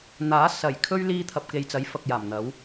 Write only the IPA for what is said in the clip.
n̪aː˨˥ sɐ˨˩j kʰɵ˥ɥ liː˧t̪ʰɐ˨p̚ke˨j t͡sɐ˨˥jfɐ˨k̚jaː˨˩m n̪ɐ˨˥w

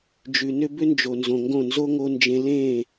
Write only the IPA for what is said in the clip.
d͡ʒʉ˨nʏ˦ bʏ˦nd͡ʒo˨nzõ˨ŋɡõ˦˨ nzo˦ŋo˧nd͡ʒẽ˧ lẽ˦˨

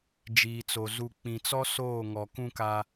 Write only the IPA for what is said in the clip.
d͡ʒiː˨t͡so˨ zu˨ k͡pĩ˨t͡sɔ˦ soː˦˨ ŋɔ˨kũ˦ka˦

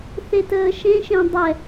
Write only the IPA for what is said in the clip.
θetəːʃẽʃẽ dˤɛ

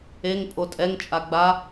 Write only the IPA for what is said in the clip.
eŋ pʼotʼɛŋt͡ʃʼa ɡ͡ba

